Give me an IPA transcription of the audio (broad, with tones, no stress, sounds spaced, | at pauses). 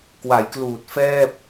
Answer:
k w a˩˦ j k l uː˨˩ t̚ f ɛː˥˩ p̚